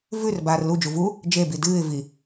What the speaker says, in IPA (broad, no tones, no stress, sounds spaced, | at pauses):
v ʉ r b aː r l u d͡ʒ u v u | d͡ʒ e b i d ɨː ɪ̯ v i